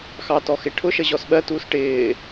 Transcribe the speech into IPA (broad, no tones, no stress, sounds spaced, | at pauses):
x ɑ t ɔ x ɪ ʈʰ ʊ ʃ ə ʑ ɔ s ɓ ɜ t uː s ʈ ɪː